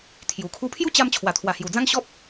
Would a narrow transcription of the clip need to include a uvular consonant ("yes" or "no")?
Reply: no